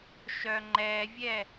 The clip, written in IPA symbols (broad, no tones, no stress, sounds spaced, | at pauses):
ʃ œ ŋ͡ǃ ɛ vʲ ɛ